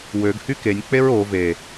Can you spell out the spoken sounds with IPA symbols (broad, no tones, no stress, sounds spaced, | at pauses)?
w ø ɡ h y k e nʲ k͡p e ɹ o v e